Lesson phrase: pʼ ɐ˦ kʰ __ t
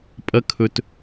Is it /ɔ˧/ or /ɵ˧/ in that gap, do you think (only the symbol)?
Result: ɵ˧